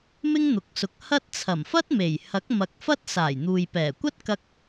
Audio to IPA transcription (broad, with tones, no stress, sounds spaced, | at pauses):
m ɪ˥ ŋ n̪ ʊ˨ k̚ s ʊ˨˥ k̚ h ɐ˥ t̚ t͡sʰ ɐ˨˩ m f ɐ˥ t̚ m e˨˩ j h ɐ˨˥ k̚ m ɐ˨ k̚ f ɐ˥ t̚ s aː˨˩ j n̪ uː˨ j p ɛː˨˩ kʷ ɐ˥ t̚ k ɐ˧ k̚